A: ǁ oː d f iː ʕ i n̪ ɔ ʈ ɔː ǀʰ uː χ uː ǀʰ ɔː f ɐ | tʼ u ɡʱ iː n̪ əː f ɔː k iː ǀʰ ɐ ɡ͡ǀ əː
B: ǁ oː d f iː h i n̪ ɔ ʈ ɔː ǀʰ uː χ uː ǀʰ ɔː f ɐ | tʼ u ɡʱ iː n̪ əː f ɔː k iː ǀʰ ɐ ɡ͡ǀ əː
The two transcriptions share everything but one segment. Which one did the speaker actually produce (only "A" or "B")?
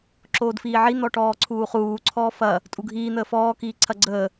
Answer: A